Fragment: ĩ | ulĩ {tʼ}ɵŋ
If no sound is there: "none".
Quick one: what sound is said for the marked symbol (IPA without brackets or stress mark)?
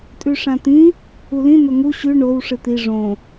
n̪